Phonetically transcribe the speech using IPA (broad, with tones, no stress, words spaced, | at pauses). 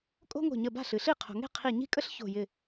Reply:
kʼo̤˥ŋo̤˧˩ɲə˧˩ ba̤˥˩ɬɨ˩ɬi˥˩ qʰo̤˩ŋe̤˥˩ qʰi˧˩ɲi̤˥kʼə˥ɬ ço̤˧˩jɪ˧˩